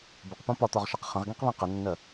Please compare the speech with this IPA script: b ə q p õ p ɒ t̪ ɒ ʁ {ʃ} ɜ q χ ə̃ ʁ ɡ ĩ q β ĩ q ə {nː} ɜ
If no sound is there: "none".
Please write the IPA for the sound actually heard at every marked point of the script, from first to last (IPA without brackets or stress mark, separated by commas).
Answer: ʃ, nː